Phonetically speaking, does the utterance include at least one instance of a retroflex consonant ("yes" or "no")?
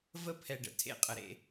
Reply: yes